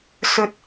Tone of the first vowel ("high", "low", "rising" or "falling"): low